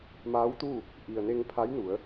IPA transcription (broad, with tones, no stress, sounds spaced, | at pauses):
m aː˧˥ w t̪ uː˥˨ | ʔ i˩ ə̯ n e˧ ŋ pʰ a˧˥ j n u˩˧ ə̯